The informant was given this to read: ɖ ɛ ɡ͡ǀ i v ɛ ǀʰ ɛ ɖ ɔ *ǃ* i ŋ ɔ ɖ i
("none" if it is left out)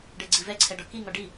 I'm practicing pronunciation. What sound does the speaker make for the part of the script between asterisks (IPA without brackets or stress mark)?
k